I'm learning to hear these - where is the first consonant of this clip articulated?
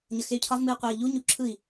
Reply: palate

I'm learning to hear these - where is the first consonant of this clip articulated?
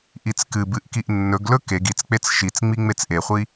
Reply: throat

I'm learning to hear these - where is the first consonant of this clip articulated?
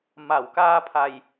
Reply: lips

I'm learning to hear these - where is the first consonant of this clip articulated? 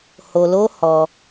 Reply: throat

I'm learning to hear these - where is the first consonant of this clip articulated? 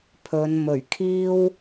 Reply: lips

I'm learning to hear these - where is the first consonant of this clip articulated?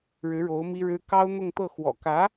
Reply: retroflex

